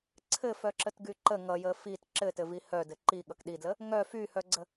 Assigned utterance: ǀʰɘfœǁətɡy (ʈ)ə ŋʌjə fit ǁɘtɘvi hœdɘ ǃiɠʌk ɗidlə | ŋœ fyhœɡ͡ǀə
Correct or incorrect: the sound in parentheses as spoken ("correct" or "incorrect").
incorrect